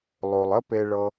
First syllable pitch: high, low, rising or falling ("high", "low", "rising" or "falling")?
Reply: low